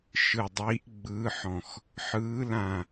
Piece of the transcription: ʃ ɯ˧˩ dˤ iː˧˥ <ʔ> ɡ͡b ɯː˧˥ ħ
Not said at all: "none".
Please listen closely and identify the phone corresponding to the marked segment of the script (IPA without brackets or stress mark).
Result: ʔ